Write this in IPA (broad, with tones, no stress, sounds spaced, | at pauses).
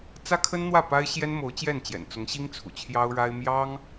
t͡s ä˥ kʰ ə˥ n n̪ w ä˥˩ p a˥ ɪ̯ ɕ j ɛ˥ n m o˧˥ ʊ̯ t͡ɕ j ɛ˥˩ n t͡ɕ j ɛ̰˨˩ n t͡s ʊ˧˥ ŋ ɕ i˥ ŋ t͡sʰ ṵ˨˩ t͡ɕʰ j ɑ˥ ʊ̯ ɻ a˥ ɪ̯ m j ɑ˥ ŋ